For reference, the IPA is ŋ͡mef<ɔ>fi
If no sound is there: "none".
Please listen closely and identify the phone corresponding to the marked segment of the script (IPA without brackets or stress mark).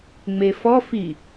ɔ